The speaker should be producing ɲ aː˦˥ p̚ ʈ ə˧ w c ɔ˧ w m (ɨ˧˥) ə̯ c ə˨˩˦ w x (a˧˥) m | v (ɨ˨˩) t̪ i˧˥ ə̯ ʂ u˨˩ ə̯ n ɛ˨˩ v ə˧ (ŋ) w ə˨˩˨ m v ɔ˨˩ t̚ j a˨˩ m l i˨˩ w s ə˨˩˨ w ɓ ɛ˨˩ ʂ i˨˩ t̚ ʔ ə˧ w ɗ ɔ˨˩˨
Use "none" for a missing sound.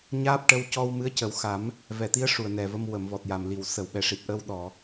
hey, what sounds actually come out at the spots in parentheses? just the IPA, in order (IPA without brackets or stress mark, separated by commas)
ɨ˧˥, a˨˩˦, ɛ˨˩, m